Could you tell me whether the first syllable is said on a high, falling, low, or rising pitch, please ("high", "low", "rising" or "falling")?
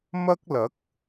high